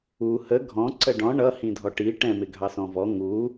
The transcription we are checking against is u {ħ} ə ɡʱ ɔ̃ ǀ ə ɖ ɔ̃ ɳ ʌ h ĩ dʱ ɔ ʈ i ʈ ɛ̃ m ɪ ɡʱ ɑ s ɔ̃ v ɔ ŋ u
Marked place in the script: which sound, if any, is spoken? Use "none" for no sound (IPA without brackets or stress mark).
h